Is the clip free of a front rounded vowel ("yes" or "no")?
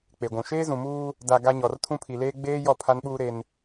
yes